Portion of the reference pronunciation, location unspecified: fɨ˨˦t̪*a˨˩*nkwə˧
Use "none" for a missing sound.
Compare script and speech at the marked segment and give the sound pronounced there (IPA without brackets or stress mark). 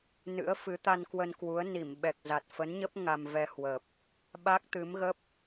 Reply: a˧